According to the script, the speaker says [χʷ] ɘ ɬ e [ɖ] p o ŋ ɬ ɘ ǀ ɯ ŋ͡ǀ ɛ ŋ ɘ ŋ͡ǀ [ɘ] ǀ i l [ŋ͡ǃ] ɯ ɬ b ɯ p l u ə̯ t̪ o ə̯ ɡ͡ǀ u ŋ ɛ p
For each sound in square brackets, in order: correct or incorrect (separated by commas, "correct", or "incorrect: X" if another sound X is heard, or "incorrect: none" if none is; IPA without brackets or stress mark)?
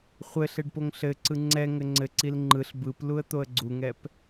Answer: correct, correct, correct, correct